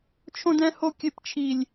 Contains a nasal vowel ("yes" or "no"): yes